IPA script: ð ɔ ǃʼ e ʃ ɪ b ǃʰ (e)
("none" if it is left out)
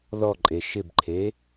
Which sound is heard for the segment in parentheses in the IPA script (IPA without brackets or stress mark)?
e